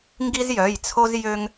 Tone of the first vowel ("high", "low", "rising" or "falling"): high